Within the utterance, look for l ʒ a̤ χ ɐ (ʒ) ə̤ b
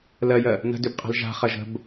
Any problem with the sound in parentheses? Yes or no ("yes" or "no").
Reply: no